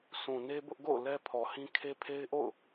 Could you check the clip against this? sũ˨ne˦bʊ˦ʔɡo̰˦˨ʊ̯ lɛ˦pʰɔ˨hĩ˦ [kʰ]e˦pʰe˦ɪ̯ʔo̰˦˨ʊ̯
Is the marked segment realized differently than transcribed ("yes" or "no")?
no